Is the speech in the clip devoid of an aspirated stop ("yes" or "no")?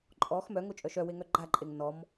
yes